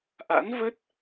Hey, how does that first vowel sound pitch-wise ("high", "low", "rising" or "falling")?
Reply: rising